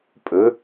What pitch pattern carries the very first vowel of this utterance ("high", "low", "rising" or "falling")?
rising